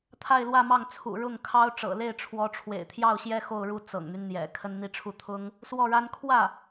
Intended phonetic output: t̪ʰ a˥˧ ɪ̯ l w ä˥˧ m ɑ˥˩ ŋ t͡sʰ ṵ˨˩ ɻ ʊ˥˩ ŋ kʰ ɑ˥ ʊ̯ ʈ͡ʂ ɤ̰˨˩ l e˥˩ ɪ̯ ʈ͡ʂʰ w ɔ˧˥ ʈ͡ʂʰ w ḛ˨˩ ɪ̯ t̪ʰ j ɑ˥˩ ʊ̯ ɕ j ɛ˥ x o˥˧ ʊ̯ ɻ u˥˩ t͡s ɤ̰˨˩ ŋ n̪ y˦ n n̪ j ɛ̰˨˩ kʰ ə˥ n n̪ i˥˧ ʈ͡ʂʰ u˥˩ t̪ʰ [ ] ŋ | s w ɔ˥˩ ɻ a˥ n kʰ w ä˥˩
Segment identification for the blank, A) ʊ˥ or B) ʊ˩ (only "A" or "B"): A